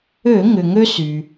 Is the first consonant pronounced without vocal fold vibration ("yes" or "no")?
no